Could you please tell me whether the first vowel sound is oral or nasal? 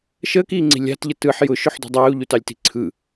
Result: oral